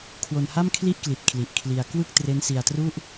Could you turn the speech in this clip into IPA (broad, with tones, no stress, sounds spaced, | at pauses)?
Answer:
kʰ w o˧ n h a˥˩ m kʰ l i˥˩ ʔ k l i˨˩ t̚ kʰ l i˨˩ ʔ kʰ l i˧ a̯ k w ɯ˥˩ k̚ t r e˦˥ n s i˧ a̯ t r u˥˩ ʔ